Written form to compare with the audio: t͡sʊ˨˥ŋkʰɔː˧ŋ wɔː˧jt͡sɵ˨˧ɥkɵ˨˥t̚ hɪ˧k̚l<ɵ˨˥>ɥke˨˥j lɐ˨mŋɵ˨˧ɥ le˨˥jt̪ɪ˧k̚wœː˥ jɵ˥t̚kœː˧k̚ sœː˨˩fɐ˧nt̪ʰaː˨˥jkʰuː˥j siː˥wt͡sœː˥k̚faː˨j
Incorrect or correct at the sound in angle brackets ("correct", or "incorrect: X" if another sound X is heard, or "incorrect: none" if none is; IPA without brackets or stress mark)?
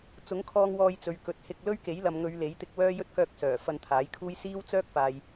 incorrect: ɵ˥